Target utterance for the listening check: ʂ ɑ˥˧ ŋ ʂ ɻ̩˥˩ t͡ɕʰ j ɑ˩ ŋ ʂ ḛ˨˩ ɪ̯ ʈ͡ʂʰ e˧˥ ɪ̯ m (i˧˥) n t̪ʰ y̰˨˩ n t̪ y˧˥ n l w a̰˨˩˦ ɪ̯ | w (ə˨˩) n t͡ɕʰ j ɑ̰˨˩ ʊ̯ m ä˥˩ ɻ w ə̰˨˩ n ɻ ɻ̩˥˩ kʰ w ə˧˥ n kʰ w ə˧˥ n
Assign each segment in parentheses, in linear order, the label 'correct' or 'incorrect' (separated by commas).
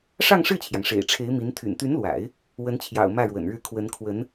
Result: correct, incorrect